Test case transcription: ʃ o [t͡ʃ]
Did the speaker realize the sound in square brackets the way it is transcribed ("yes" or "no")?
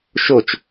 yes